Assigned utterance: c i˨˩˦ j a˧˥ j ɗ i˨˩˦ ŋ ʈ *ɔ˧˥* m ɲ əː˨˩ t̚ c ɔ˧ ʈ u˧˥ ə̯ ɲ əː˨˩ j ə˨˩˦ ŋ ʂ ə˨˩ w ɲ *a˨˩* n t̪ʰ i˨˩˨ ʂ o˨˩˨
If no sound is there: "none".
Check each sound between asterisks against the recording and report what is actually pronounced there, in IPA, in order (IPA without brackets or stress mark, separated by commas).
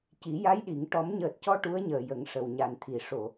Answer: ɔ˨˩˦, a˨˩